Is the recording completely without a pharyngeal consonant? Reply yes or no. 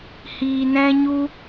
yes